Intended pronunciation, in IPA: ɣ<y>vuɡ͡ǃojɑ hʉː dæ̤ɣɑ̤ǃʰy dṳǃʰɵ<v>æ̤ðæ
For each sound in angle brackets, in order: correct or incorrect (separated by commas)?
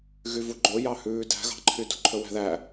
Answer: correct, incorrect